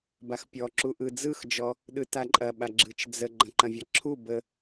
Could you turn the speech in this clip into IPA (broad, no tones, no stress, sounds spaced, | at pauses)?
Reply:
b a x pʲ ɔ ǁ u ʔ ɯ d͡z ɯ x d͡ʒ ɔ | ɗ ɯ t a ǃʼ ɐ ɓ a ɡ͡ǁ ɯ t͡ʃ d͡z ə ɡ͡ǃ ɐ̃ ǃ ɐ̃ vʲ ɐ ǁʰ u b ə